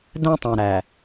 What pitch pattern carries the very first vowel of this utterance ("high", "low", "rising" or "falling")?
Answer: high